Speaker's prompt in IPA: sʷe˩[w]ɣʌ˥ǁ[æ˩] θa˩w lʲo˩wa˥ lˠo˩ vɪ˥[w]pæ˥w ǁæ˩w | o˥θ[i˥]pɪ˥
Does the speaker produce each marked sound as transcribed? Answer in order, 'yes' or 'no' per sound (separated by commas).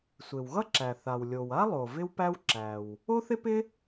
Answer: yes, yes, yes, no